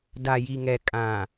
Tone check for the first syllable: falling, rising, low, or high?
low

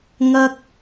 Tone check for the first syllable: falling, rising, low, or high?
high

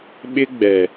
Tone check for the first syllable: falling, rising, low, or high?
high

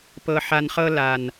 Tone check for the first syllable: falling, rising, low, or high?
low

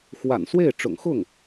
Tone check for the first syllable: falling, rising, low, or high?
low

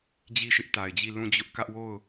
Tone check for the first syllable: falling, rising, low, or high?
falling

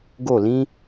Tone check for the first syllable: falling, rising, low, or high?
falling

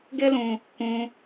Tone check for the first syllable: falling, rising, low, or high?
high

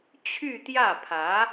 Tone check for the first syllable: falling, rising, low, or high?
falling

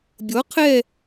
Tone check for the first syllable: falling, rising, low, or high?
rising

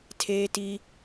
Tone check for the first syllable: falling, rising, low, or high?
high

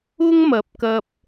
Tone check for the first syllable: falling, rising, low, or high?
high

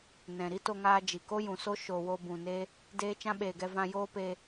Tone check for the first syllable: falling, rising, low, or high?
low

